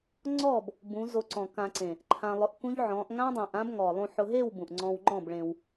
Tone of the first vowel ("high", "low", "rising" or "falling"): falling